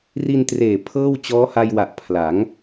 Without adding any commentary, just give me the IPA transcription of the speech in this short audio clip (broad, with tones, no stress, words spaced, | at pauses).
ri˧ntreː˨˩ pʰɤː˥˩w t͡ɕɔː˦˥ha˧jwa˨˩ʔ pʰla˩˦ŋ